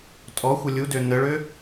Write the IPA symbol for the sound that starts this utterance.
tʼ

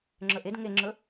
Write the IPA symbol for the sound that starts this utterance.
ŋ͡ǁ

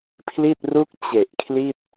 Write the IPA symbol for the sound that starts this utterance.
pʰ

